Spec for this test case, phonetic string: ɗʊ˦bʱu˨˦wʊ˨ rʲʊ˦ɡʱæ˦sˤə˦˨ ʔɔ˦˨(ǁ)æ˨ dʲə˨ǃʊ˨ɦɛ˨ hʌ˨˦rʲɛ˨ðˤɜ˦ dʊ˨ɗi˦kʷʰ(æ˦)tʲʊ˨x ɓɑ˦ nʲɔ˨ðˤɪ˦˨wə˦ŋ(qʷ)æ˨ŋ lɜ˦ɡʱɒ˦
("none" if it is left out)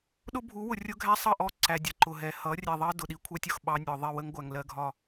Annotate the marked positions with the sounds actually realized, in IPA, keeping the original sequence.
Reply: ǀ, æ˦, ɡʷ

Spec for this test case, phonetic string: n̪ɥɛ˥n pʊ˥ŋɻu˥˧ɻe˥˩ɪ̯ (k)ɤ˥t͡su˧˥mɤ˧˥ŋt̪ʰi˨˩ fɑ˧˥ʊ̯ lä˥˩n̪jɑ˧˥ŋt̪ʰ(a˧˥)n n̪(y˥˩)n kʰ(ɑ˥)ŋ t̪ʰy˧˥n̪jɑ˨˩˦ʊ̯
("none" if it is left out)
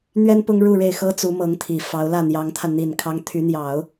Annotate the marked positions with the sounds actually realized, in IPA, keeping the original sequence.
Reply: x, a˧, i˥˩, ɑ˥

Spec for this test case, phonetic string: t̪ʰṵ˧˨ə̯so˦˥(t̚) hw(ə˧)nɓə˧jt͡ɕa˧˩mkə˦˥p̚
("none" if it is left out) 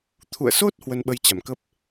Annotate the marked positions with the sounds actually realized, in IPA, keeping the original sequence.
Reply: t̚, ə˧

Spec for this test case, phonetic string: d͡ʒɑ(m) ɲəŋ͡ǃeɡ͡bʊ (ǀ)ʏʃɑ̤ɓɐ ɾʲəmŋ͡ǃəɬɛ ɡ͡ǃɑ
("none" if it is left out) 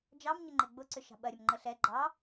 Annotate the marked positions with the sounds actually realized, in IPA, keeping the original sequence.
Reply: m, ǀ

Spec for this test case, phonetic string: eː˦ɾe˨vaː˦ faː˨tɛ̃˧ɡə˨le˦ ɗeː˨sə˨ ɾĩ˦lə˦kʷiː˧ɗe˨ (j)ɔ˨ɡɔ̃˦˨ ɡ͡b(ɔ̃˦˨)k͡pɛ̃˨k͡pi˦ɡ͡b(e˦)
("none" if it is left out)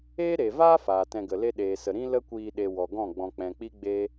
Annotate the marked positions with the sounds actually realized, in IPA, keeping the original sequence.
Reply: w, ɔ̃˨, e˦

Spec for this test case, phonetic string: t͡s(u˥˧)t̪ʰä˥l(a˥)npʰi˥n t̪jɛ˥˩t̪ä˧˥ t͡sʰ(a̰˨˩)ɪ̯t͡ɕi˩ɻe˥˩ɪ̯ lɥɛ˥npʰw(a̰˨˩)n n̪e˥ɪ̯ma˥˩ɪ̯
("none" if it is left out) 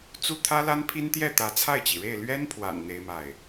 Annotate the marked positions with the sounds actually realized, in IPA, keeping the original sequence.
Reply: u˥, a˥, a˥˩, a̰˨˩

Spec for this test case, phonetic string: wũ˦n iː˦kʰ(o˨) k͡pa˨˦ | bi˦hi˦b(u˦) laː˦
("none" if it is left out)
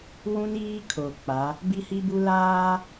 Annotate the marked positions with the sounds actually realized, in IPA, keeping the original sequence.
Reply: o˨, u˦

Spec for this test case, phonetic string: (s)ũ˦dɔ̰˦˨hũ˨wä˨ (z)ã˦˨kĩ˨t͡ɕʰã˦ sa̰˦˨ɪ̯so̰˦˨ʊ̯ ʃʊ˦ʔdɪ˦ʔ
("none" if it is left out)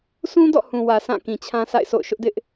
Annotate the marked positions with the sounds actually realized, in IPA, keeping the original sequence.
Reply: s, s

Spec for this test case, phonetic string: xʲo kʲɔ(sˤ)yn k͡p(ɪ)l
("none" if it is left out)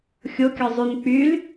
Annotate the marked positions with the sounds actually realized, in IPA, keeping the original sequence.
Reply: zˤ, y

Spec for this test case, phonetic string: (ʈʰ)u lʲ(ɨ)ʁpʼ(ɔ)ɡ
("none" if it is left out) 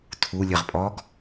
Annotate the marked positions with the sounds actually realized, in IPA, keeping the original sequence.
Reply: tʰ, ɨ, ɔ

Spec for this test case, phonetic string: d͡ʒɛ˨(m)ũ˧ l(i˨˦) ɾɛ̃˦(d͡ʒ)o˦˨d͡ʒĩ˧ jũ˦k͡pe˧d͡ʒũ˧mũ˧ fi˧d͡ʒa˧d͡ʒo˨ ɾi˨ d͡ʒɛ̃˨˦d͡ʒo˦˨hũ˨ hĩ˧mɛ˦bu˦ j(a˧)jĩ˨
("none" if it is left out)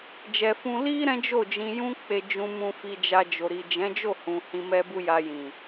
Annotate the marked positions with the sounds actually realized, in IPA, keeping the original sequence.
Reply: f, i˦, d͡ʒ, a˧

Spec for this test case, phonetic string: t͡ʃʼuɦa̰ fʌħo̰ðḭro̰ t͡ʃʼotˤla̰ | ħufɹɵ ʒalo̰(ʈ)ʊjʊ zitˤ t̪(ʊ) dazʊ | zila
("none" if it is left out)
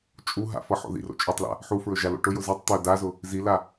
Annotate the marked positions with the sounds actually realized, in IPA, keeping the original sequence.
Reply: ʈ, ɵ

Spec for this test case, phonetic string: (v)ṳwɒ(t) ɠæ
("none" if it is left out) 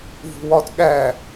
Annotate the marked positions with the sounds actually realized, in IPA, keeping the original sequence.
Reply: v, t

